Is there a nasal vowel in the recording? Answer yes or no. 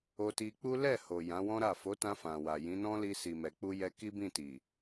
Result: yes